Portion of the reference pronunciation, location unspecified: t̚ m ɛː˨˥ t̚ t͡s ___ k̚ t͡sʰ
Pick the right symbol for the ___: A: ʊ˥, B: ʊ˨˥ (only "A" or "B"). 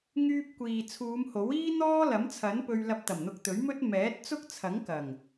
A